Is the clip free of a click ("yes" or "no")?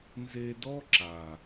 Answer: no